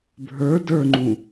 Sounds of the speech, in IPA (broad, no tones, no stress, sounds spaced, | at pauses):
bʱ ə˞ d ə˞ ŋ͡ǃ ũ